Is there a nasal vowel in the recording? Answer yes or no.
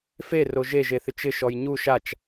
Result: no